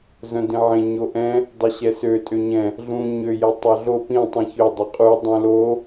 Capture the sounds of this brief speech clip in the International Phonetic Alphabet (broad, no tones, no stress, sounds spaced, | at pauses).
z œ̃ d ĩ ʕ ẽ ɲ o ʔ ɛ̃ | dˤ ø ɕ ɛ s ø tʼ ø ɲ ɛ̃ | ɮ ũ ɲ ø j e tˤ œ ɮ o p ĩ tˤ ĩ ç ø dˤ ɛ qʼ u dˤ ɛ̃ l o